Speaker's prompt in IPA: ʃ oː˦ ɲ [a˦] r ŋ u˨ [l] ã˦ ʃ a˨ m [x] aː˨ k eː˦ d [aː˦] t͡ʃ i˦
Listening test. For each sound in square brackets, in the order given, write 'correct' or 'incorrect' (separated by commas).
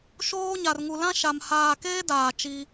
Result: incorrect, correct, incorrect, incorrect